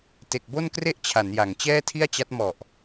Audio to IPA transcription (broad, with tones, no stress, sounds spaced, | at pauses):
t e˨˩ k̚ b o˥˩ n k r e˥˩ ʔ t͡ɕʰ a˩˦ n j a˩˦ ŋ t͡ɕ ɛː˥˩ tʰ i˥˩ a̯ t͡ɕ a˦˥ t̚ m ɔ˨˩ ʔ